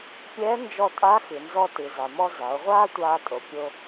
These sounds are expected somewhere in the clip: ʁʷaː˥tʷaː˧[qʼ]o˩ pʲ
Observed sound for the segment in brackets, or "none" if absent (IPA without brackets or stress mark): tʼ